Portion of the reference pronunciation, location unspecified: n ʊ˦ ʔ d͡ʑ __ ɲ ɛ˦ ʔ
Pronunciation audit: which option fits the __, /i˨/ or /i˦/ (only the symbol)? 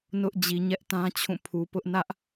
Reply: i˨